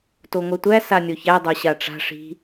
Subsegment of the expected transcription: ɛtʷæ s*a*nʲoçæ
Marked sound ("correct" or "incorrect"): correct